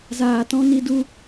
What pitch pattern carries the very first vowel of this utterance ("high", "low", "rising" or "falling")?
low